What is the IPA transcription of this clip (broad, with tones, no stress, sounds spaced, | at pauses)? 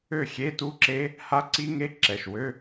ø˥˨ xʲ e˧˥˧ t u˦˥ ǁ e˦˥ | h a˦˥ ǀ i˦˥ ŋ e˦˥ ǁ ɛ˩˧˩ ʃ w ø˧˥˧